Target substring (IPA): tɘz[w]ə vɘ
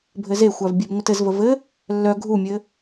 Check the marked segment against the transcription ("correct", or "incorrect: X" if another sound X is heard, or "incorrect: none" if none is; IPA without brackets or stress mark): incorrect: v